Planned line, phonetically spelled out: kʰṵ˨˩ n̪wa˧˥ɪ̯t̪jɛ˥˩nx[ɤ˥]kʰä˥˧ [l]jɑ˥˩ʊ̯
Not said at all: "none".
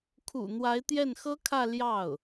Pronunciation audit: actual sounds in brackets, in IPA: ɤ˥, l

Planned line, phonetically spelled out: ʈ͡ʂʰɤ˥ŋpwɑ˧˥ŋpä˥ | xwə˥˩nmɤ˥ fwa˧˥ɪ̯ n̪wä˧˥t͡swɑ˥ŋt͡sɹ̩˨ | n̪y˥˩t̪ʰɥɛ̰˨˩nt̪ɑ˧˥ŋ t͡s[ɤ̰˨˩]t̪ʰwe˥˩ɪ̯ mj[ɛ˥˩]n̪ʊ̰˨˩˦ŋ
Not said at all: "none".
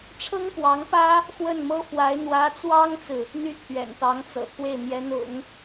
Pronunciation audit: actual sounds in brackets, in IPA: ɤ̰˨˩, ɛ˧˥

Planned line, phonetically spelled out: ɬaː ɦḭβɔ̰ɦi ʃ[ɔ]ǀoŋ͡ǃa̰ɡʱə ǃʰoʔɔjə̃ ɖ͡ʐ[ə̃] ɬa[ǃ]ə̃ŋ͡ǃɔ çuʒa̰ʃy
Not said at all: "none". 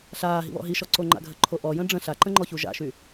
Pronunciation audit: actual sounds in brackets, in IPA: ɔ, ə̃, ǃ

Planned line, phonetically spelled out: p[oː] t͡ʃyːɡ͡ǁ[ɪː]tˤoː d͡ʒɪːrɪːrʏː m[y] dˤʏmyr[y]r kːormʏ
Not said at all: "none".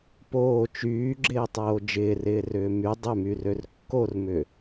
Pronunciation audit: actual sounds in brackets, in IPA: oː, ɪː, y, ø

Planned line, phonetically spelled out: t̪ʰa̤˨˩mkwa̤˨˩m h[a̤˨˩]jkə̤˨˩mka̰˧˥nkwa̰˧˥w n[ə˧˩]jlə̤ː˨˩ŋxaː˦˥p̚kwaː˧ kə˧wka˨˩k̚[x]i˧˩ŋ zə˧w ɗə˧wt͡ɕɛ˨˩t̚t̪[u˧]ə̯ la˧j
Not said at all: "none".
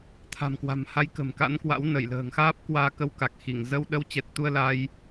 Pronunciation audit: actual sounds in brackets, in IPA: a˧, ə˧˩, x, u˧

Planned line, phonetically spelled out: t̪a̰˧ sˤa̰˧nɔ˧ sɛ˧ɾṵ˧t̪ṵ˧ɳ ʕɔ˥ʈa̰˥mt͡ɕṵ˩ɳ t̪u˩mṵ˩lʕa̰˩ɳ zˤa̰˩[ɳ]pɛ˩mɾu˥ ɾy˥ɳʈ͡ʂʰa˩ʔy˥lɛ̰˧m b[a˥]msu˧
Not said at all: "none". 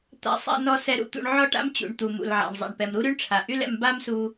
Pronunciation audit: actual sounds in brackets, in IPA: ɳ, a˥

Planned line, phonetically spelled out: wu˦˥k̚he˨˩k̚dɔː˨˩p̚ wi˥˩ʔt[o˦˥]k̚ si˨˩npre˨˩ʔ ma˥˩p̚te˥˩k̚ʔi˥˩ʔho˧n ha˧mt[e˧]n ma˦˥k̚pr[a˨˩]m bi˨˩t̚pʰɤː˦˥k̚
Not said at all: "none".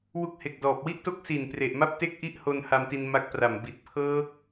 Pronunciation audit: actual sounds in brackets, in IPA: o˦˥, i˧, a˨˩

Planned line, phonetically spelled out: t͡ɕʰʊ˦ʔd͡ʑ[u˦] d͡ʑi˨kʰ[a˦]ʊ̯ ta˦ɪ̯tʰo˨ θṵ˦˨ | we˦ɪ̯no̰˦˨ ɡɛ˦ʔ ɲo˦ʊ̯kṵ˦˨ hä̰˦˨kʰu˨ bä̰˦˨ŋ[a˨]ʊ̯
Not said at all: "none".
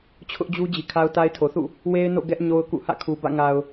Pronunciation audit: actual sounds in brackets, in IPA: u˦, a˦, a˨

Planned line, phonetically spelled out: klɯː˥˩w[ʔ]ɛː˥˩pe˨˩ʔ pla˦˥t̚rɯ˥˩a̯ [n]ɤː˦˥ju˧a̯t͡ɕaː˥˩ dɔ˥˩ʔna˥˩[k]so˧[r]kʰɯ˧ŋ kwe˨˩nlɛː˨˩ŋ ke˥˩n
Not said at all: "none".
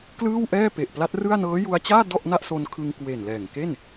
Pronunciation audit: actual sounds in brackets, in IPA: ʔ, n, ʔ, n

